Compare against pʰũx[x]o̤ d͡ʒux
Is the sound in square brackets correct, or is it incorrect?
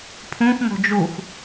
incorrect